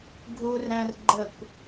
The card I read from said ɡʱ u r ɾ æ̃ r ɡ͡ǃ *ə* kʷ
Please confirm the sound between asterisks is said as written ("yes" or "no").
yes